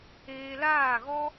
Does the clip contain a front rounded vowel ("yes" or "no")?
no